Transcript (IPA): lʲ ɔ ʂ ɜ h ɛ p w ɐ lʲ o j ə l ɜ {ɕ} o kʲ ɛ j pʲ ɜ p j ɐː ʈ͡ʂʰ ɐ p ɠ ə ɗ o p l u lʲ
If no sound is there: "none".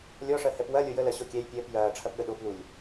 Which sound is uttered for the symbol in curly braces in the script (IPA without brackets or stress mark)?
ɕ